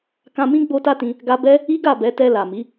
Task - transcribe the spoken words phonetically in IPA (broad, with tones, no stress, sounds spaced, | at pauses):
k ã˧ m ĩ˦ ɡ͡b o˦ t a˦ t ĩ˧ | ɡ a˧ b ɛ˦ | i˦ ɡ a˦˨ b ɛ˨˦ t ɛ˧ l a˨ m i˨˦